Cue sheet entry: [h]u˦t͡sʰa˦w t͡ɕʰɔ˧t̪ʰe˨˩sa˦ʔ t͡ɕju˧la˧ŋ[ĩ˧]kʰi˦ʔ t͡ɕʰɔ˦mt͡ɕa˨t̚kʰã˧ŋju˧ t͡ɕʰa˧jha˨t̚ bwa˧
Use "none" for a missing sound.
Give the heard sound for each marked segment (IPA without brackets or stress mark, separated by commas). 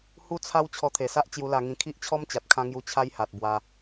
h, ĩ˧